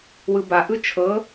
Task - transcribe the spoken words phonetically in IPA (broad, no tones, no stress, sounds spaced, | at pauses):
w ɯ b a ʔ ɯ t͡ʃʰ ɤ